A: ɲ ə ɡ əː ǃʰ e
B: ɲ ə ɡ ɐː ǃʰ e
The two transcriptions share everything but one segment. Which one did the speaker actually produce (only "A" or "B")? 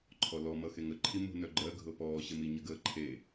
A